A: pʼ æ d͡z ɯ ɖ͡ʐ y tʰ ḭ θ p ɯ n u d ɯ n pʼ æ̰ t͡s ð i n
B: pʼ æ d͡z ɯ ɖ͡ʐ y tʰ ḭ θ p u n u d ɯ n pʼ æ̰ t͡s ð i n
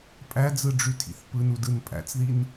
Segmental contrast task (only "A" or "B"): A